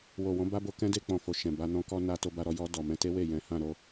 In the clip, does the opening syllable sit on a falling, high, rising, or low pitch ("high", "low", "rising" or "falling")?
low